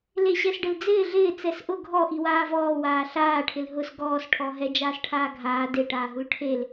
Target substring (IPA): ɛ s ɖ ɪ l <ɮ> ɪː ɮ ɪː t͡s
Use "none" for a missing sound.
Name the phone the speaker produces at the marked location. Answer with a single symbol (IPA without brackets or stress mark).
d͡z